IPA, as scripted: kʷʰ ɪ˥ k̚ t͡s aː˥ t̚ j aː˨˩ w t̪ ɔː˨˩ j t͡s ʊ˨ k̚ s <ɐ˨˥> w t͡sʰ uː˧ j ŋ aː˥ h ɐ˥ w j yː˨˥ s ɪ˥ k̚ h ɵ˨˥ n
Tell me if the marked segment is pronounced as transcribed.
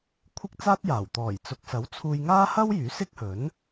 yes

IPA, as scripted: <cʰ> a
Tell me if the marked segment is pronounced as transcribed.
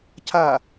yes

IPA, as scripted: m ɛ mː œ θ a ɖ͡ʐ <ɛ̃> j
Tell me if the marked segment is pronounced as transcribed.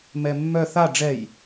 no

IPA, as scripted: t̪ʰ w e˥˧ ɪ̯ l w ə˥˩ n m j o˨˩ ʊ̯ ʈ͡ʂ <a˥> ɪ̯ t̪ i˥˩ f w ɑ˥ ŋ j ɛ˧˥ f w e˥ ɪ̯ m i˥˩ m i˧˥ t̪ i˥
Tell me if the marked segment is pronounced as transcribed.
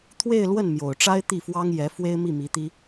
yes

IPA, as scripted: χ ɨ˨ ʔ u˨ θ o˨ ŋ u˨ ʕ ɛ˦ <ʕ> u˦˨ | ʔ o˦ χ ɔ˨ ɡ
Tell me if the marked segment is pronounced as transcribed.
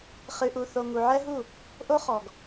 no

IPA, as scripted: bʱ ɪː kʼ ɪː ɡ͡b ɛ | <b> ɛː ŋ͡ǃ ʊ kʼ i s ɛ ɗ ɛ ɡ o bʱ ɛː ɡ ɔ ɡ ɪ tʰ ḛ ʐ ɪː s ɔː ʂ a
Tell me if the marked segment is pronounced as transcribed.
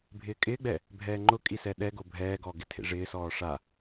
no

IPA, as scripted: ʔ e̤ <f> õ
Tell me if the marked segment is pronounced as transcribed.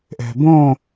no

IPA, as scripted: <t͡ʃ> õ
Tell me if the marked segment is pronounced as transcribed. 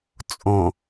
no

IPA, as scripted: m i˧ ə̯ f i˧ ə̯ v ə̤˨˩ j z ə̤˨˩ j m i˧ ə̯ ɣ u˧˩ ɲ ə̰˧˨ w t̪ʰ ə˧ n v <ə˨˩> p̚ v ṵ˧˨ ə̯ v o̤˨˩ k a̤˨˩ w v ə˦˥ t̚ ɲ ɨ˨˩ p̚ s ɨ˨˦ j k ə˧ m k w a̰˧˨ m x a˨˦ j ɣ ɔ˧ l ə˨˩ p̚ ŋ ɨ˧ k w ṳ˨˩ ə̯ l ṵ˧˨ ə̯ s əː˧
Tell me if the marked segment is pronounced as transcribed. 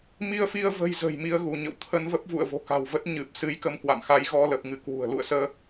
no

